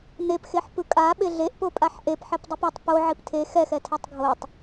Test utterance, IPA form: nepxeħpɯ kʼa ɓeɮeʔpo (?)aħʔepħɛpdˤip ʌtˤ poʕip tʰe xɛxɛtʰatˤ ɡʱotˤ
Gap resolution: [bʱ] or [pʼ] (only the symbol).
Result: pʼ